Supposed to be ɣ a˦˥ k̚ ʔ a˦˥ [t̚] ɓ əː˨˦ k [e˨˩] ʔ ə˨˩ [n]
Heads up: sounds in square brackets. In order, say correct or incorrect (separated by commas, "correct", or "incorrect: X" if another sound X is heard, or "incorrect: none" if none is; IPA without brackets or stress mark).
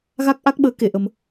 incorrect: k̚, incorrect: e˧˩, incorrect: m